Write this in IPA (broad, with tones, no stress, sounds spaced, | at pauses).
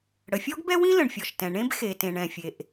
ɽ ə˩ fʲ ɔ˥ ɡ b ɛ˥ w ĩ˥ l ə̃˩ ɳ fʲ ɔ˩ ʃ t ɛ̃˩ ɳ ẽ˥ b x e˩ t ẽ˩ ɳ ɛ̃˩ fʲ e˩ ʔ